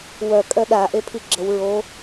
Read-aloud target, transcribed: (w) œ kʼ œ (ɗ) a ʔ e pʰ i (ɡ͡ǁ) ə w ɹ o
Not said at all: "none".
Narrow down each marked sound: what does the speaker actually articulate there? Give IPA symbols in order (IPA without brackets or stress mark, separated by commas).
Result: w, ɗ, ɡ͡ǁ